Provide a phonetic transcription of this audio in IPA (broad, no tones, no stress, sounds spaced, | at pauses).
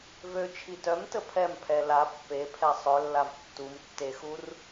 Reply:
v ø t͡ʃʰ i t œ m t ə pʰ ɛ m pʰ ɛ l a pː e pʰ ɛ sˤ œ lː a v tː u m tː e x u r